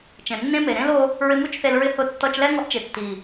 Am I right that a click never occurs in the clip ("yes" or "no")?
yes